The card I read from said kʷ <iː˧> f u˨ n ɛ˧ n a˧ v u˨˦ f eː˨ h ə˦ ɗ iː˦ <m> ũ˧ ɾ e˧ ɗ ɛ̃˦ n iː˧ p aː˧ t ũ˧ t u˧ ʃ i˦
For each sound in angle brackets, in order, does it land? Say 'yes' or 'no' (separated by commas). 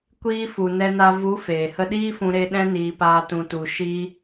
yes, no